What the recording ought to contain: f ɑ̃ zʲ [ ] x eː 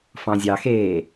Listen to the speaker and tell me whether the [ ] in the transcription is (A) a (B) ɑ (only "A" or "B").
B